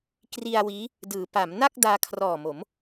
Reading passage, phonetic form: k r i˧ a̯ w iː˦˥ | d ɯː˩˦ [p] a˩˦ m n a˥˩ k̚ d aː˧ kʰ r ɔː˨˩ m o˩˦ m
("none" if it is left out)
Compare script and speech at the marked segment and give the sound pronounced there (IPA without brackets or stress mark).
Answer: p